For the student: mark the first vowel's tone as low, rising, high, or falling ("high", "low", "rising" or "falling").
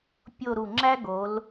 falling